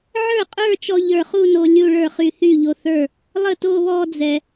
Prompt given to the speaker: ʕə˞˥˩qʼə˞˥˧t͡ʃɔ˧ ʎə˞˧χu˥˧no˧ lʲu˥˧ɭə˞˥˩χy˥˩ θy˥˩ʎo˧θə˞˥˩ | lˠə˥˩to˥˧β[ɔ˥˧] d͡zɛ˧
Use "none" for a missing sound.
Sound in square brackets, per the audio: ɔ˥˧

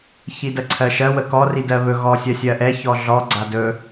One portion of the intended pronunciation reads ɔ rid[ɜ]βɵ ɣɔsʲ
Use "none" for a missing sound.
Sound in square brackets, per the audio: ɜ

